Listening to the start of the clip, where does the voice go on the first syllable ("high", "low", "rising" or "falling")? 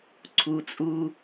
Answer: low